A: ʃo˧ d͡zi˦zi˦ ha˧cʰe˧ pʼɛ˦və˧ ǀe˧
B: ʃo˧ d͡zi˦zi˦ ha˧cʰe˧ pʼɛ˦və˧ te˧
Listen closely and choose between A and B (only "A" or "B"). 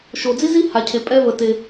B